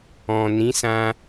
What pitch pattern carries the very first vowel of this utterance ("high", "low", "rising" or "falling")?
low